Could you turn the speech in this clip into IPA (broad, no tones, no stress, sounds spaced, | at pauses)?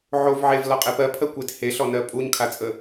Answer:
ʕ o v ʕ e v l ɒ qʼ e p ɜ pʰ ɜ kʷ e t h e ɬ ɔ n ɜ pʼ u ɲ kʰ a t͡sʼ ə